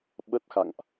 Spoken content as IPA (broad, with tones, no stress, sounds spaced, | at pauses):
ɓ ə˦˥ t̚ x a̰˧˨ ŋ ʔ